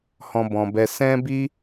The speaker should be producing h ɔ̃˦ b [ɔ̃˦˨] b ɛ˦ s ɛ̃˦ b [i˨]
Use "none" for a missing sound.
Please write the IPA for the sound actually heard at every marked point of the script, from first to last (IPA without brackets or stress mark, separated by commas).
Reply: ɔ̃˧, i˦